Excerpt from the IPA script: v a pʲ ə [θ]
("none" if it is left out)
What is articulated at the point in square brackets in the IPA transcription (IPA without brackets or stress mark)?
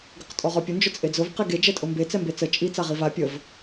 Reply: v